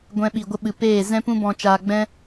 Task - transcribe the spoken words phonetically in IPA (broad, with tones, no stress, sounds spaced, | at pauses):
ɡʷ ɛ̃˧ ɓ i˨ ɡʷ ə˧ ɓ ɨ˨ p eː˦˨ z ɛ̃˦ p ũ˦ b ɔ̃˧ t͡ʃ aː˧ ɡ͡b ɛ̃˦